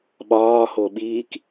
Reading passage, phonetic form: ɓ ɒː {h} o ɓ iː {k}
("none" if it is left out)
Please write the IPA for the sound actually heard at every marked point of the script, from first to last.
h, k

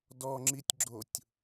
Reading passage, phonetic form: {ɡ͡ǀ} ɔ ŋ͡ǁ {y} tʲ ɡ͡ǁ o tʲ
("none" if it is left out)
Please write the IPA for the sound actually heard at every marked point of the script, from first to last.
d, i

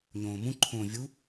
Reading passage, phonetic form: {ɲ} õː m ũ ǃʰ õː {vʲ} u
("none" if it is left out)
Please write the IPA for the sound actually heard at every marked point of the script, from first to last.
ɲ, vʲ

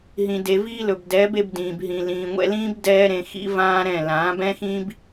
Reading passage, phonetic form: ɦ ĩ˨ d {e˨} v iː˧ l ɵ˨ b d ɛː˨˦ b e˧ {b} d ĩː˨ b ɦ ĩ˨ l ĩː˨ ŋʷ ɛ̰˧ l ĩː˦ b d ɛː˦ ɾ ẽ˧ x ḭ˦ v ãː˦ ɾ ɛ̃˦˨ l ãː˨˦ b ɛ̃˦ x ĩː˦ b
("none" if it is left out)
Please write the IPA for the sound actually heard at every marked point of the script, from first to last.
e˨, b

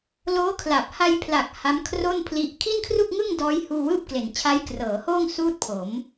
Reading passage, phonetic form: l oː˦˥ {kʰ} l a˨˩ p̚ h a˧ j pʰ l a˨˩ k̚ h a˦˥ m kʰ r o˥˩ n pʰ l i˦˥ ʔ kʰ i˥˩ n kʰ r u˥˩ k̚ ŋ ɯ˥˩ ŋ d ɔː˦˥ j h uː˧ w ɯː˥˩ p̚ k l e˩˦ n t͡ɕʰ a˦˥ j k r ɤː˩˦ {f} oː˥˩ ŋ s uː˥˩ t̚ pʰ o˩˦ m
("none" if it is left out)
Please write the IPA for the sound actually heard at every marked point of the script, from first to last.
kʰ, h

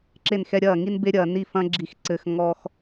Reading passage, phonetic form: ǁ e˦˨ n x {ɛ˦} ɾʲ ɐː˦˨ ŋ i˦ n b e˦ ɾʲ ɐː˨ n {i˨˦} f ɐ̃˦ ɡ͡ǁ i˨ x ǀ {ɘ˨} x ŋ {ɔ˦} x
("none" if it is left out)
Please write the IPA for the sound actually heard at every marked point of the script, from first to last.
ɛ˦, i˦˨, ɘ˨, ɔ˦

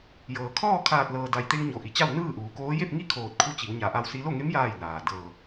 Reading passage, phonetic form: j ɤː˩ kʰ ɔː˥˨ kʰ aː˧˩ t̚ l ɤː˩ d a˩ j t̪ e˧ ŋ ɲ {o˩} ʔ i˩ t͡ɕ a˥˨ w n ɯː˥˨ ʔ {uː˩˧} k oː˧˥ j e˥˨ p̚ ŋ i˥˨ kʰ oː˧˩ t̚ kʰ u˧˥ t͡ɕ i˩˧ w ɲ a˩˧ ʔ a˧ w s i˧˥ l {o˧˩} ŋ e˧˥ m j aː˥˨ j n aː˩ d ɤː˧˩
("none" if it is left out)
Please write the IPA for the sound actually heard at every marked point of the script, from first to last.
o˩, uː˩˧, o˥˨

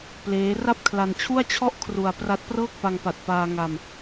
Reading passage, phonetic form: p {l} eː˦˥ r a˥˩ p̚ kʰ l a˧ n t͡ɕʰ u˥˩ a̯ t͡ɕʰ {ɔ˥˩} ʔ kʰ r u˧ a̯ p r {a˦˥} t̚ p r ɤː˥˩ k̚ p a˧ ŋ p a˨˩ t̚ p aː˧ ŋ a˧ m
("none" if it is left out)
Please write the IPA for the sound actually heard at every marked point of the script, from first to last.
l, ɔ˥˩, a˦˥

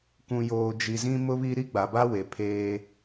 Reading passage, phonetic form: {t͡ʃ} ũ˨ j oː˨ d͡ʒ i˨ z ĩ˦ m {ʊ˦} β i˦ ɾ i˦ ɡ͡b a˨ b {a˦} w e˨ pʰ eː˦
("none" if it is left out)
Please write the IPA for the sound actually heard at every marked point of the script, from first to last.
k, ʊ˦, a˦

